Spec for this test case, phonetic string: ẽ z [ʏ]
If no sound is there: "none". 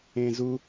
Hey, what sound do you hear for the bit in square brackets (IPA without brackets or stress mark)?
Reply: u